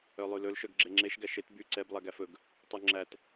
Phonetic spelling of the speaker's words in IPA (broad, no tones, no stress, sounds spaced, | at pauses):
œ lˠ ʉ l ɵ l ʃ œ ɡ ɡ͡ǁ e ŋ͡ǁ e ʃ ɡ æ ʃ e t b y ǀ ɛ b lˠ æ ɡ æ f ɵ ɡ | tˤ ʉ ŋ͡ǁ æ t